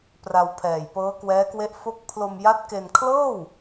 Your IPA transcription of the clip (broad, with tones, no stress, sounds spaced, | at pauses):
p r a˧ w pʰ ɛː˨˩ j p ɤː˦˥ k w ɛː˦˥ k w e˦˥ ʔ f o˦˥ k̚ pʰ l o˧ m j a˦˥ t̚ k e˧ n kʰ l ɤː˥˩ w